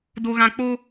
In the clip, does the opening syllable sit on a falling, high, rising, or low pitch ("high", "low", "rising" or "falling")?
low